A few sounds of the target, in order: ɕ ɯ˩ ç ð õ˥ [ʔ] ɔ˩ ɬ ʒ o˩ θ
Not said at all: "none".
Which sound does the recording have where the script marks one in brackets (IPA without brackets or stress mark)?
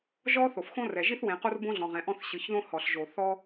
h